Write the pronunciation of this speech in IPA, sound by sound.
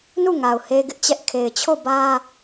n u˦˨ ŋ a˨ ʊ̯ h e˦ ɡ ɪ˦ ʔ t͡ɕ ɛ˦ ʔ kʰ e˨ ɪ̯ t͡ɕʰ o˦˨ b ä˦

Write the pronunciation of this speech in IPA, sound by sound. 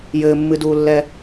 j ɘː mː ɨ d uː lː ɛ

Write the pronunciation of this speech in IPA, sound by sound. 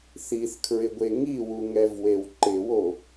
θ i θ kʰ ɹ ɪ ɡʷ e ŋ i w u ŋ ɛ v w e w ǃ ɪ w o

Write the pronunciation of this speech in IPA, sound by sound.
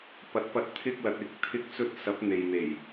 p ɐ˨˥ t̚ p ɐ˧ t̚ t̪ʰ ɪ˥ k̚ l ɐ˧ t̚ ɪ˥ k̚ t̪ʰ ɪ˥ k̚ t͡s ɵ˥ t̚ s ɐ˨˥ p̚ n̪ e˨ j n̪ e˨˩ j

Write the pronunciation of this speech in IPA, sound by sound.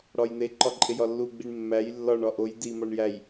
ɽ ɒ j n̪ e ǃ ɒ ǃʼ e j ɒ lː u ɡ͡b i ɳ mː æ j lː ɒ ɳ ɒ ʔ o j d i m ɒ ɳ j æ j

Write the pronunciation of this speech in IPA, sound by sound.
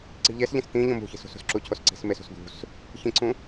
ǀ i̤ ʎ e s ʎ ẽ s t̪ ĩ ʎ õ m ṳ ç i̤ s ṳ s ṳ s ǁ u cʰ o s ǀ i̤ s m e s ṳ s d̪ ṳ s | ç ĩ ǀ ũ

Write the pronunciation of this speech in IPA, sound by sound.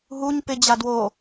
ɦ u ɲ p ɪ d͡ʑ a d w o

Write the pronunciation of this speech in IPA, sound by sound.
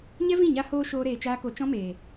ɲ ɛ˦ v ĩ˦˨ ɲ a˧ h oː˧ ʃ oː˦ ɾ eː˧ t͡ʃ aː˦ k o˧ t͡ʃ ɔ̃˦ m eː˨

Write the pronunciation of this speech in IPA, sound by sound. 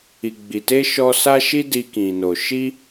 i˨ ɡ͡b i˨ t e˧ ʃ ɔ˧ s a˦ ʃ i˦ d i˧ k ĩ˨ n o˨ ʃ i˧

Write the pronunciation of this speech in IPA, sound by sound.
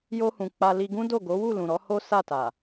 j o˧ h ũ˨ k͡p a˧ l i˧ ɡ ũ˦ d o˦˨ ɡ o˨˦ w u˦˨ l ũ˨ ɾ ɔ˨˦ h o˦ s a˦˨ t a˨

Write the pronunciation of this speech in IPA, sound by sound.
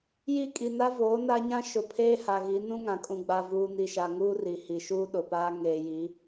j i˦˨ kʼ i˨ n a˦ v oː˨˦ n a˦ ɲ ã˦ ʃ ʊ˨ pʰ eː˦ h a˨ ɣ i˨˦ n ũ˦ ŋ ã˨ kʼ ũ˨ ɡ͡b a˨ v uː˨ n i˨ ʃ a˨ ŋ uː˦ r i˨ h i˨ ʃ uː˦ ɗ ʊ˨ p aː˦ ŋ eː˨ j i˨˦

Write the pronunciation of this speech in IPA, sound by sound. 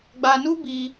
ɡ͡b a˧ n u˦ b i˧

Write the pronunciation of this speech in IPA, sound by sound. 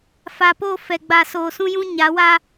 f a˨ p o˦˨ f ɛ˨ ɡ͡b a˨ s oː˨ s ũ˦ j ũ˦ ɲ a˨˦ w a˦

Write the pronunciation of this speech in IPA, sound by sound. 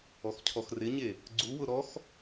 ɔ x cʰ ɔ x r ɪ ɲ e | ɡ͡ǀ u w ʊ ɾ ɔ x

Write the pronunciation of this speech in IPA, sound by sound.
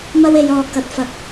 m ɐ˥ w e˨˧ j ɔː˨ k ɐ˨ t̚ f ɐ˨˥ k̚

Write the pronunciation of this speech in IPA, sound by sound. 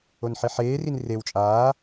o n ħ i ħ eː r i n r e w t͡ʃʼ aː

